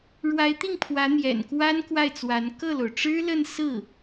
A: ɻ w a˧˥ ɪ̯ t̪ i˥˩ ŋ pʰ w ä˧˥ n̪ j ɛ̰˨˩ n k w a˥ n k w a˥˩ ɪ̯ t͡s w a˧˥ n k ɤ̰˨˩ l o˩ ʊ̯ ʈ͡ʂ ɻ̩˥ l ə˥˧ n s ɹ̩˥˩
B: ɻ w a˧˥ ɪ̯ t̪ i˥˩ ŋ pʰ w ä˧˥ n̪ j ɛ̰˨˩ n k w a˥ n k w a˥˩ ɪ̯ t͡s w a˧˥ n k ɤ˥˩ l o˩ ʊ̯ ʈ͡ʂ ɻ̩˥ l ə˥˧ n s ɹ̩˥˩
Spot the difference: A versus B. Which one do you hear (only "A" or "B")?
B